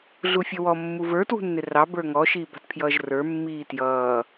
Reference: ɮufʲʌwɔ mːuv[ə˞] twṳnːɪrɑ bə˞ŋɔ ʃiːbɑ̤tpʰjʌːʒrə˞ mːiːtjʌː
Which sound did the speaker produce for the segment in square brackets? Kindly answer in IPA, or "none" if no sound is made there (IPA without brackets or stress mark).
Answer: ə˞